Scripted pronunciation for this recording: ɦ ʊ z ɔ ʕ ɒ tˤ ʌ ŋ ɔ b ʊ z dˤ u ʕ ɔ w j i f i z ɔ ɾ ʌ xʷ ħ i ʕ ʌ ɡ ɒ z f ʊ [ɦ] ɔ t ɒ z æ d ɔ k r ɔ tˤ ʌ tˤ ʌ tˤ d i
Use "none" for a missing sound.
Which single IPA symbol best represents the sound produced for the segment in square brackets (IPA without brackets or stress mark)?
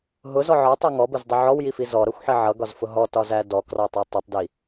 ɦ